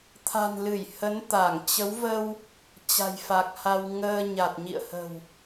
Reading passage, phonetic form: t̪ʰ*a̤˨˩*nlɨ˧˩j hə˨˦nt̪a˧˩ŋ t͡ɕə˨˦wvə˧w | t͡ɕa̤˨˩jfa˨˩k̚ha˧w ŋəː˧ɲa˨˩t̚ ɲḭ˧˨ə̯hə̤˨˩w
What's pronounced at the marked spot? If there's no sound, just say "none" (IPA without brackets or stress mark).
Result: a̤˨˩